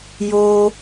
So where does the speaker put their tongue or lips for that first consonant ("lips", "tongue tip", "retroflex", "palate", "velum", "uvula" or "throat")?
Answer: palate